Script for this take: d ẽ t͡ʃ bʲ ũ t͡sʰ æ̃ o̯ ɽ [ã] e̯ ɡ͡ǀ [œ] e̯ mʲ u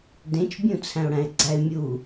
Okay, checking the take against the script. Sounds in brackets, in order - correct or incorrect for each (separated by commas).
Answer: incorrect, incorrect